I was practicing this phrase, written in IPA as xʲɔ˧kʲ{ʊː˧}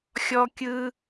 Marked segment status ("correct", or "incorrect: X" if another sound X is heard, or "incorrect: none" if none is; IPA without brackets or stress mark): incorrect: ɯː˧